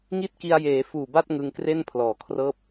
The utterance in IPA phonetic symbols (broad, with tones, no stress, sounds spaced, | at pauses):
ŋ i˥˩ t̚ k i˧ a̯ j eː˩˦ f uː˨˩ b a˥˩ t̚ ŋ ɯ˧ ŋ k r e˥˩ n pʰ l ɔː˩˦ kʰ r ɤː˦˥ p̚